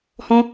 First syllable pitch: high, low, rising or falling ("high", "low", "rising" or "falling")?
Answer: high